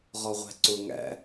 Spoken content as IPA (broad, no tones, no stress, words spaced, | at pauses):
ʁɔʁʷæ̤ǀʊ ŋæ̰